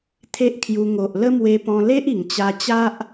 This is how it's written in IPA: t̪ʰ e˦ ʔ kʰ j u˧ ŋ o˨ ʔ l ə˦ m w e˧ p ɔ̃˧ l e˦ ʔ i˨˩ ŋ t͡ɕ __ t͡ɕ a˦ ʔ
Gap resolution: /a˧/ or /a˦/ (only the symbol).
a˧